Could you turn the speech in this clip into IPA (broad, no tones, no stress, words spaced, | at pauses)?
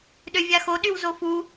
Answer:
ɗøvʲaxoɗyw zofu